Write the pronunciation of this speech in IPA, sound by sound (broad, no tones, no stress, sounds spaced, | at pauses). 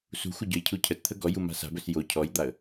s ṳ xʷ ə ɟ ɵ j cʰ u cʰ ə t t̪ʰ ə ɡ ɔ j u m a̤ s a̤ b ɵ s j o cʰ ɔ j d̪ a ə̯